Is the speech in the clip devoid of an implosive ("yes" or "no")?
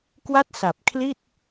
yes